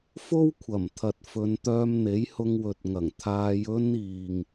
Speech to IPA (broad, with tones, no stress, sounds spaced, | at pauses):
f o˥ w kʷʰ ɐ˨˩ m t̪ʰ ɐ˨ t̚ f ɵ˨˧ n t̪ œː˧ m n̪ e˨˥ j h ʊ˧ ŋ w ɵ˨ t̚ ŋ ɐ˨˩ ŋ t̪ʰ aː˧ j ɵ˥ n iː˨ ŋ